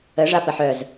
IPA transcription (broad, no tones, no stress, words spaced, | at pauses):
ə ʐapəħœz